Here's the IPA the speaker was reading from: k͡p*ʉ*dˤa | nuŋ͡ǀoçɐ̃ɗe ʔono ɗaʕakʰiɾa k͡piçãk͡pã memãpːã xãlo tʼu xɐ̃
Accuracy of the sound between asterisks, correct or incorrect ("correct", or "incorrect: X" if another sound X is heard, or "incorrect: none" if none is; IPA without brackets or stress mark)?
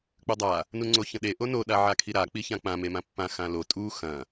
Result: correct